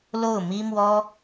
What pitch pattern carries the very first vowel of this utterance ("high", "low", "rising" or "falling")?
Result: falling